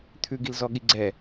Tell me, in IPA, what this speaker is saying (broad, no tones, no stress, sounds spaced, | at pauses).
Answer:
t̪ʰ ʉ ɡ i l z ɔ ɠ i ɡ͡ǀ ɛ